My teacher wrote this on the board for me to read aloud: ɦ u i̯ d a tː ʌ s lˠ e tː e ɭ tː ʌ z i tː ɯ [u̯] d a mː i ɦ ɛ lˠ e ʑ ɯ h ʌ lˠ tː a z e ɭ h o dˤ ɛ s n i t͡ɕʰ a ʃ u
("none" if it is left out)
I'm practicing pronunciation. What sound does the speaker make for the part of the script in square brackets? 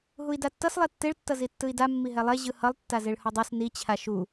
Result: i̯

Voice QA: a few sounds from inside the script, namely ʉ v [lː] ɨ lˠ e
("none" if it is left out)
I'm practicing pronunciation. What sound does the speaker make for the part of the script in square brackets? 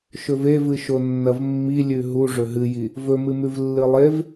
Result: lː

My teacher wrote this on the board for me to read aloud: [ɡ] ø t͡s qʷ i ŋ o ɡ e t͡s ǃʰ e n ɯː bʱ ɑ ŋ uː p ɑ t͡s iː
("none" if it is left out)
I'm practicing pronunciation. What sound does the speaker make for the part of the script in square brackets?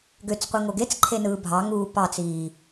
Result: ɡ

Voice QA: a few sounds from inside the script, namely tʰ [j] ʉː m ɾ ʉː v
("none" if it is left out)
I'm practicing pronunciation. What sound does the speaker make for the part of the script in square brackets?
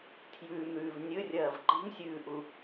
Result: j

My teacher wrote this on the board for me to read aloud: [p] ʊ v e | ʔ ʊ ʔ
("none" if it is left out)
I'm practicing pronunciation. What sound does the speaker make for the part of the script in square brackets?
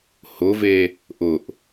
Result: h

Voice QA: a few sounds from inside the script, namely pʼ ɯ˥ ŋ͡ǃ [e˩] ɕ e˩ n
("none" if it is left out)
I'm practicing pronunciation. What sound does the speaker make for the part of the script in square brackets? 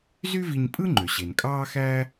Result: ø˩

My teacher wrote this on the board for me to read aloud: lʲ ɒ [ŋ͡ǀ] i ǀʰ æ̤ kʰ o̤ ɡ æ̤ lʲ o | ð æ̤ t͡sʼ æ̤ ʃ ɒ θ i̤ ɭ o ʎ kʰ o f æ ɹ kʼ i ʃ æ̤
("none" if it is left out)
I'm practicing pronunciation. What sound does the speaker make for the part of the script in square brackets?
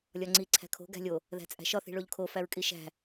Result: ŋ͡ǀ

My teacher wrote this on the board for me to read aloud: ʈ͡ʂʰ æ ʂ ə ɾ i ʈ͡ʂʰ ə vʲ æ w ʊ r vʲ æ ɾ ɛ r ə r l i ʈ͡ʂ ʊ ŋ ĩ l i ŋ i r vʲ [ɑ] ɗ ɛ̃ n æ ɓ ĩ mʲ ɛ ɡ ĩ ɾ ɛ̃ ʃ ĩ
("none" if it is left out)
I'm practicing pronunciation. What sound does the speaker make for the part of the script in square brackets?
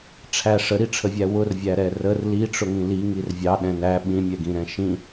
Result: ɑ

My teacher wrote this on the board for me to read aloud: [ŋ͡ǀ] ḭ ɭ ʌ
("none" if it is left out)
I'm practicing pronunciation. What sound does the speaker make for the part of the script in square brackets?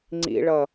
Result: ŋ͡ǀ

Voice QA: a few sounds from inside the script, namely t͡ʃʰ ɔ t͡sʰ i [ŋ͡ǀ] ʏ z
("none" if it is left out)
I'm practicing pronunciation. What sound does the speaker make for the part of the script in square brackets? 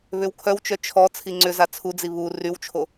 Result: ŋ͡ǀ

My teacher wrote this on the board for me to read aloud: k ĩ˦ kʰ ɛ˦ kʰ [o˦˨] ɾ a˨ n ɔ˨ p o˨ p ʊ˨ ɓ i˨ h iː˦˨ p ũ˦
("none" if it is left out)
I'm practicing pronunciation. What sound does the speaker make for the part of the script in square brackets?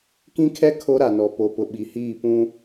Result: o˦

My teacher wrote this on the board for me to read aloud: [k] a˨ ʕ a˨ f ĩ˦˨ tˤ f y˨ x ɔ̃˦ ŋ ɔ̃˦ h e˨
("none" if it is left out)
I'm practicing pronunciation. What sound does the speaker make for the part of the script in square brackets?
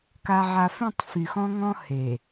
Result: k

